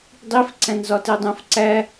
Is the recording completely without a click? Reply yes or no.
no